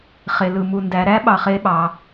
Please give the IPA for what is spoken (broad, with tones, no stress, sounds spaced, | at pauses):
χ e˩ l ɯ˩ m u˩ n d æ˩˧ ɾ æ˧˥ ɓ ɑ˩˧ χ e˧˥ ɓ ɑ˩˧